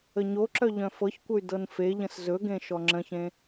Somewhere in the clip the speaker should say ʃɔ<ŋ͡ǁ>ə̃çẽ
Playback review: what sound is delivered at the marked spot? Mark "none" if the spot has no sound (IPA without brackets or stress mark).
ŋ͡ǁ